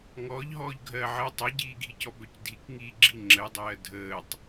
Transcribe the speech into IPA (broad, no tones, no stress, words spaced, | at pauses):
ŋɔːʎɦɔːʎ ɡʱɜʕəːtˤ œɟiːɡʱicɔ bœcdʱikŋiːɡ͡ǁi ŋ͡ǁəːdˤɜː dʱəːtˤ